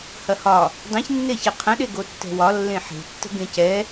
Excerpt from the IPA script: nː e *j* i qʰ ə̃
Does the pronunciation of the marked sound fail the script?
yes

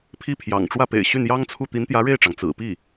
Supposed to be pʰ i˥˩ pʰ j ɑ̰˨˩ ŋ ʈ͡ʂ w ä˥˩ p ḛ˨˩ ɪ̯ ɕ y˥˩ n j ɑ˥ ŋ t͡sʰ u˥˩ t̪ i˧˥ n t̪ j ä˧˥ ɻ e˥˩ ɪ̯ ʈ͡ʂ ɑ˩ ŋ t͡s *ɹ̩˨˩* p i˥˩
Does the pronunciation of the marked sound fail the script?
no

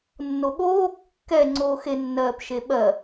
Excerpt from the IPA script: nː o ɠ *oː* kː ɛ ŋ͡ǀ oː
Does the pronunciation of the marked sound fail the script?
no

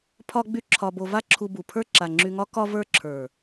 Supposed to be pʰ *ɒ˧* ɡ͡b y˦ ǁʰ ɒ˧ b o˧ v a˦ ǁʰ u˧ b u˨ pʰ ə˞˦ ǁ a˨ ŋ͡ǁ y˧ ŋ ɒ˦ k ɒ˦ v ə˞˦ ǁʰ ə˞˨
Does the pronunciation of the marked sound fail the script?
yes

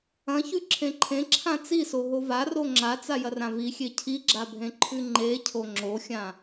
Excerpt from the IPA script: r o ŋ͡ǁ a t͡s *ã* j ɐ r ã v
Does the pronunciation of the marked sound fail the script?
yes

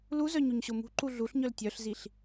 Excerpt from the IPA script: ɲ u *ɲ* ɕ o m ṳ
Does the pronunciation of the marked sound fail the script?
no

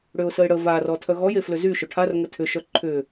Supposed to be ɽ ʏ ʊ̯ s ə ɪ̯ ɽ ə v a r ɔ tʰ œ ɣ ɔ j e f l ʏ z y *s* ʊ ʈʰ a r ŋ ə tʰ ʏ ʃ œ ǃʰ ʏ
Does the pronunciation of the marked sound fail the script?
yes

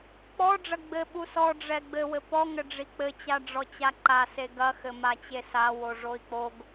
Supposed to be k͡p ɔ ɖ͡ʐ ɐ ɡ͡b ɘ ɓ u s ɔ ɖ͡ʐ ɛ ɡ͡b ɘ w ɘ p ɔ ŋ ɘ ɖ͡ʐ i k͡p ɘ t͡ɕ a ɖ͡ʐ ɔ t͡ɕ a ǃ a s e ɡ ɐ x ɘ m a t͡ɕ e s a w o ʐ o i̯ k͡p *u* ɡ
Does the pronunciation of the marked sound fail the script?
yes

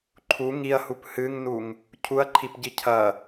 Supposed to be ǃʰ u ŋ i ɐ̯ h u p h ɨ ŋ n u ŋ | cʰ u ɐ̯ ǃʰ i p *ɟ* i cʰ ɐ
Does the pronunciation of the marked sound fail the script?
no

